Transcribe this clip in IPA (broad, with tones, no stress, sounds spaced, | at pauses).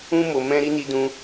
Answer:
ũ˦ m o˧ m ɛ̃˦ ɾ i˦ n i˦ d ũ˦